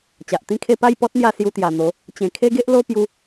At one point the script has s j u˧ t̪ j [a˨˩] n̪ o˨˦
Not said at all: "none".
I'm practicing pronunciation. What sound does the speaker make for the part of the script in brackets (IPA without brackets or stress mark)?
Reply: a˨˩